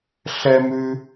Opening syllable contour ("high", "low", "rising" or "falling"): high